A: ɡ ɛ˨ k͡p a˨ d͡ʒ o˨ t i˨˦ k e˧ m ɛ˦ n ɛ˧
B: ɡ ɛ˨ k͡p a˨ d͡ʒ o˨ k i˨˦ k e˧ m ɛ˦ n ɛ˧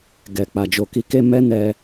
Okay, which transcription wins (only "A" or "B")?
B